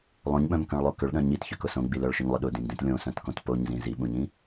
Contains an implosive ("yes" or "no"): yes